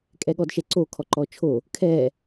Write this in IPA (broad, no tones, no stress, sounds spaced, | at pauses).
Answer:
kʼ ɛ ɠ ɔ d ʃ ɛ ǀ o kʰ ɔ ǃ ɔ t͡ʃʰ o | kʰ ɛ